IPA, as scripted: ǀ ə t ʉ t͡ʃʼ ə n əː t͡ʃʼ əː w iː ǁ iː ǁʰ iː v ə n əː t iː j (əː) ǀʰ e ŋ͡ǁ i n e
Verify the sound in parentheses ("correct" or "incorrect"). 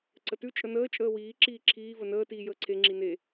correct